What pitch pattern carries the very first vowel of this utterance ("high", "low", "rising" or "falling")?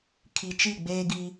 low